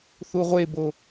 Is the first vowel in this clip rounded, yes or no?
yes